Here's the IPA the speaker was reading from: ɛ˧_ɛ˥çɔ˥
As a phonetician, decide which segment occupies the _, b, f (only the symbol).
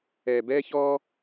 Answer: b